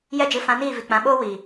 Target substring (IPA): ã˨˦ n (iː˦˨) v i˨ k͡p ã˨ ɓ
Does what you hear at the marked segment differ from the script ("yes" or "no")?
no